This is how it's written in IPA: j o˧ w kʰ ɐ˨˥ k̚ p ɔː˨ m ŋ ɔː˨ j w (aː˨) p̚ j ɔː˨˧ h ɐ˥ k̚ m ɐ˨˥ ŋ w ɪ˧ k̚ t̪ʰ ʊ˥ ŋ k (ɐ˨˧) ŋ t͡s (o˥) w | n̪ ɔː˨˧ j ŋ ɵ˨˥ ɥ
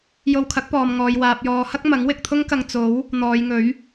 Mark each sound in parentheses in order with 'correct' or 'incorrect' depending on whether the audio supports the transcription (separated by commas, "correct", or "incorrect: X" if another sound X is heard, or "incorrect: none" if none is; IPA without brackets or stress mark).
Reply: correct, incorrect: ɐ˧, incorrect: o˨˥